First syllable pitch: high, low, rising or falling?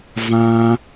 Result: high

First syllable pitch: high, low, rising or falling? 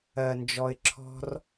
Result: low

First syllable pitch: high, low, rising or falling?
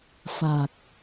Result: low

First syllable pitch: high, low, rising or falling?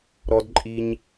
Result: high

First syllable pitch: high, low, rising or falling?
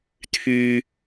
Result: low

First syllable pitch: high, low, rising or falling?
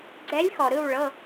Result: rising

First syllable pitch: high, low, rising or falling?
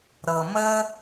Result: low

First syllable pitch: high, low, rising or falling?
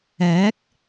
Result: rising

